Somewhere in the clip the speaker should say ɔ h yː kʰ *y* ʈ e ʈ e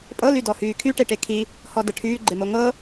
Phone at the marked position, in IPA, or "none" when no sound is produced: y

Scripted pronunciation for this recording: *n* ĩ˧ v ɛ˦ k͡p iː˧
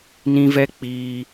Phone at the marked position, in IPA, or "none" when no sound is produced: n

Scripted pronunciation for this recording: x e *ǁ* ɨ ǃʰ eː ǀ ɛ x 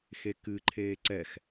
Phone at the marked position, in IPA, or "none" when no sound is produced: k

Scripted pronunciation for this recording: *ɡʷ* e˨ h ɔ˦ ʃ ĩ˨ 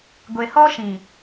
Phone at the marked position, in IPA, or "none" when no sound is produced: ɡʷ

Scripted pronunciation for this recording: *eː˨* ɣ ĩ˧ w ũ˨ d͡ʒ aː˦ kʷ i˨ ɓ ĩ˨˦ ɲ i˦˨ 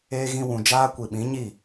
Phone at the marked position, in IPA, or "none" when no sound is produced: eː˧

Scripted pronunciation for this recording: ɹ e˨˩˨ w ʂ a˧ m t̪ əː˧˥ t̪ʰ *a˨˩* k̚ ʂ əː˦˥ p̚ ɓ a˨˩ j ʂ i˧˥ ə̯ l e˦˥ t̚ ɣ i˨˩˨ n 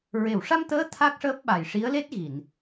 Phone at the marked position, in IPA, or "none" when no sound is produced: a˦˥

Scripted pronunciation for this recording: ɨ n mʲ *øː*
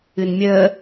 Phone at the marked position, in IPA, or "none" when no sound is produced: əː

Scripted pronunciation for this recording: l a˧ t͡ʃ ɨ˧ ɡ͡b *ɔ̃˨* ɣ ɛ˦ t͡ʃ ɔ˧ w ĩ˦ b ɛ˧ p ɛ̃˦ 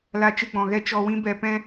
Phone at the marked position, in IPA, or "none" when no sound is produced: ɔ̃˨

